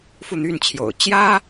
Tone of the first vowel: falling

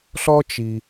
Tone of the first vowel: high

